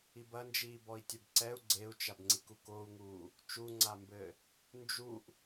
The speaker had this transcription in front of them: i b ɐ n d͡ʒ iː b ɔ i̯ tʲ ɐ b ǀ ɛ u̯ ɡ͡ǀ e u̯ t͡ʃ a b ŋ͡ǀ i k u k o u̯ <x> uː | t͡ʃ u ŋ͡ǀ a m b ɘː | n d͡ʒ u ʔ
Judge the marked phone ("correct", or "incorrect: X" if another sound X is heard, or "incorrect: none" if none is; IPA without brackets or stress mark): incorrect: ŋ